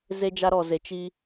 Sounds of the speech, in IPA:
z e˦ d͡ʒ a˦ ɾ ɔ˨ z e˨ t͡ʃ i˧

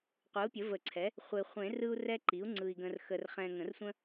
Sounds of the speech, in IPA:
qʷ ɯ˩˥ u̯ pʲ ə˩˥ v ə˨˩˦ ǀʰ ɛ˩˥ | χʷ e˨ χʷ ẽ˨˩˦ r ɯ˦ u̯ r ɛ˦ ǃ i˩˥ u̯ ŋ͡ǀ ɯ˨ i̯ ɡ ə̃˨ r x ə˨ r χ ɛ̃˨ ŋ ə̃˨˩˦ r sʷ ə̃˦

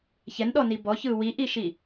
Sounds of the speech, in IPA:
ç ɛ n ɗ ɔ n i b ɔ ç ɯː w i ʔ i ʃ i

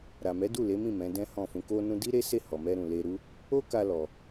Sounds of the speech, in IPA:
ɾ a˨ m ɛ˨˦ d u˦˨ l e˨˦ m ĩ˦˨ m ɛ̃˨˦ d ɛ̃˦ h ɔ̃˦˨ f ũ˧ k o˦ n ũ˦ d i˦ ɾ e˦ s e˦˨ h ɔ˨ m ɛ˧ ɾ ũ˨ l e˧ ɾ u˦ | o˦ k a˧ l ɔ˧

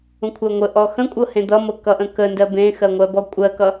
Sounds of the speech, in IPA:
ũ kʷʰ ɜ ŋʷ ə ʔ ɔ x ə̃ kʷʼ ɤ h ẽ d̪ ʌ m ɤ k ʌ ʔ ə̃ k ə n d ɜ b ẽ x ɜ ŋʷ ɜ b ɔ kʷʼ ɜ k ʌ

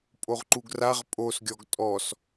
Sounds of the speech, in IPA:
pʼ o ʁ ǃ u ɡ r a ʁ pʼ o s ɡʲ ɔ ɡ tʼ ɔ s

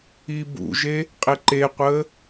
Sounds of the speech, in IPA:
i b ṵ ʒ e | qʼ e ǃ e qʷ əː

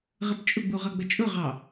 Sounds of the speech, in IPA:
ʁ ə p t͡ʃʼ ʊ ɡ͡b u ʁ ʌ ɡ͡b ə t͡ʃʼ ʊ ʁ ɑ

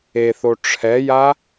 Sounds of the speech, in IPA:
e θ o ʈ͡ʂʰ ɛ j a

